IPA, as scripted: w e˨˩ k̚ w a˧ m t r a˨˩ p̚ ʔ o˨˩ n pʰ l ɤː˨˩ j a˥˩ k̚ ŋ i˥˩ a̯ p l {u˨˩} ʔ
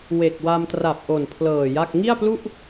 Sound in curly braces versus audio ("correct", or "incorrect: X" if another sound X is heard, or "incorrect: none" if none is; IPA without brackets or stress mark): incorrect: u˥˩